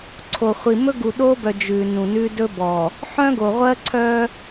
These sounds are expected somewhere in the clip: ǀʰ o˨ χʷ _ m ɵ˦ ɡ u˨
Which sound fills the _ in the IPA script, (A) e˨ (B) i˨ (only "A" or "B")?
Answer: B